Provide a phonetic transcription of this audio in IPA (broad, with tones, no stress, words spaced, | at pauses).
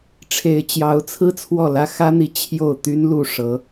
ʈ͡ʂʰe˧˥ɪ̯t͡ɕjɑ˧˥ʊ̯t͡sʰɹ̩˥ t͡sʰwɔ˥˩lä˥ xä˥n̪i˧˥ t͡ɕʰjo˥˩ʊ̯t̪y˥n lu˥˩ʂɤ˧˥